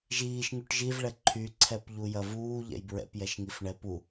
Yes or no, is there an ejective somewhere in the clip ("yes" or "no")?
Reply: no